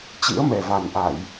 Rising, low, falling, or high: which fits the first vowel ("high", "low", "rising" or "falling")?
rising